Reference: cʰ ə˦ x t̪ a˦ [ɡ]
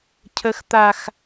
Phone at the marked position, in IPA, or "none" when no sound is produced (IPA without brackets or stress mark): x